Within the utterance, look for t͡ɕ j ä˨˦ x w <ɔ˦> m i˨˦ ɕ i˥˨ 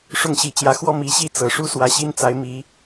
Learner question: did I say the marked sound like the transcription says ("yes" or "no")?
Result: yes